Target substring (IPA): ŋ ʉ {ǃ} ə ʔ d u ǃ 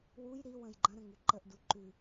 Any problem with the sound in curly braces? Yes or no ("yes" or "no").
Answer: no